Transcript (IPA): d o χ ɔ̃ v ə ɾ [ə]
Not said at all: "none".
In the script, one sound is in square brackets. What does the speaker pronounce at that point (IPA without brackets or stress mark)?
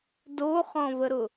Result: ʊ